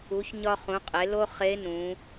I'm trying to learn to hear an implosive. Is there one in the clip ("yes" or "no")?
no